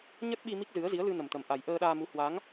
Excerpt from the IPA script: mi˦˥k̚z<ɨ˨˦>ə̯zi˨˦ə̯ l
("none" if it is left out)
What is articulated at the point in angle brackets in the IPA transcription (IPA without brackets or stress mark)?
ɨ˨˦